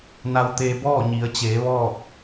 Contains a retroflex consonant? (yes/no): no